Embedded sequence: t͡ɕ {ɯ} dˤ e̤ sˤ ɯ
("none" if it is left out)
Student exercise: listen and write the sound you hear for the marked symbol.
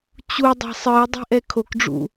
u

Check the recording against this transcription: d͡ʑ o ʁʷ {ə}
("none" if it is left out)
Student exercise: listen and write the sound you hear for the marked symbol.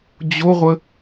ə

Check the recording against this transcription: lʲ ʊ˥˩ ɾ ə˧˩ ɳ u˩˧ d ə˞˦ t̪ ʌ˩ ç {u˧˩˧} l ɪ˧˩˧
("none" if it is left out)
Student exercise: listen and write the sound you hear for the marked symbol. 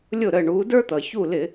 u˧˩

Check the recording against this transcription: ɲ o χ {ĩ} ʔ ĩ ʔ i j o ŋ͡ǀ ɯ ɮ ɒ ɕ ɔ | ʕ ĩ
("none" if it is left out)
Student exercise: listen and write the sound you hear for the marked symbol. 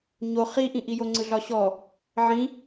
i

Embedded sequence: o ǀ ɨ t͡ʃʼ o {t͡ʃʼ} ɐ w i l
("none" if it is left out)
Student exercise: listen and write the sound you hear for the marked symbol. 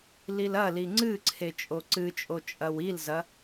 t͡ʃʼ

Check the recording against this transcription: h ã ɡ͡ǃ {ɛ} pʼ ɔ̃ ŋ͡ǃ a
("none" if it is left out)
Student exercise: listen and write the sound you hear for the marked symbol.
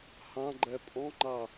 ɛ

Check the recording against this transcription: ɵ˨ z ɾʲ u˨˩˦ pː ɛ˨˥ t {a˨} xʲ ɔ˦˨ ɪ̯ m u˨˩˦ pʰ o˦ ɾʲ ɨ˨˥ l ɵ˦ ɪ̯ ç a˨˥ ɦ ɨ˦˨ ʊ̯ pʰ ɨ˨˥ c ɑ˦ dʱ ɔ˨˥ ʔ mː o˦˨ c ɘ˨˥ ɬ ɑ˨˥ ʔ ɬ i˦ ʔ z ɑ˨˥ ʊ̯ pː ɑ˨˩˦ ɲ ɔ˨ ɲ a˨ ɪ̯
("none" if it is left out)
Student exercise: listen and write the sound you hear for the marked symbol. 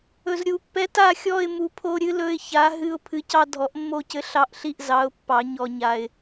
a˦˨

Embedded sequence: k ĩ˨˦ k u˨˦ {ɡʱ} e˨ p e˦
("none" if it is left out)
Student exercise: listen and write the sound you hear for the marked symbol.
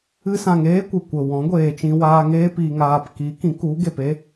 ɡ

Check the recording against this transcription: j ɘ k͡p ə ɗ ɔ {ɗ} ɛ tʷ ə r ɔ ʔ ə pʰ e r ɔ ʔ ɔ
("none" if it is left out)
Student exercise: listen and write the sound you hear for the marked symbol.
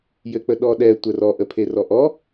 ɗ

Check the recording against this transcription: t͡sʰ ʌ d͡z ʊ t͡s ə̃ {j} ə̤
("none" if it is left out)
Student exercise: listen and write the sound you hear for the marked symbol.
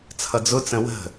w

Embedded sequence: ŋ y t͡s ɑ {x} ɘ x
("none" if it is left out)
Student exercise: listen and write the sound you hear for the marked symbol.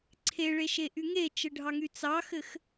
x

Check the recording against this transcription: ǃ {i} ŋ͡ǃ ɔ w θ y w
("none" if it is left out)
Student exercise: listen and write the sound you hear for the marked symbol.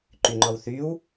y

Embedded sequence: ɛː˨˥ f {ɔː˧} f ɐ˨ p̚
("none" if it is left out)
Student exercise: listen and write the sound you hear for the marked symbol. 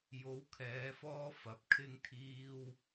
ɔː˥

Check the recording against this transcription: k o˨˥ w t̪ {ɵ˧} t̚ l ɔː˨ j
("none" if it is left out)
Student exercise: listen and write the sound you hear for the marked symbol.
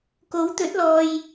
ɵ˨˥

